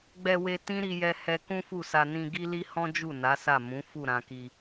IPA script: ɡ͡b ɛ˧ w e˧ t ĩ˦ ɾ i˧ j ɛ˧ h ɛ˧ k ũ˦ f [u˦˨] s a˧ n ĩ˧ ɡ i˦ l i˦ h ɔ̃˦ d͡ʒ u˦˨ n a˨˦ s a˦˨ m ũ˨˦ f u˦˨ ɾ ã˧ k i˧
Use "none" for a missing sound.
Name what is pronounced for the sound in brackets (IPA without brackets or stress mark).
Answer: u˦˨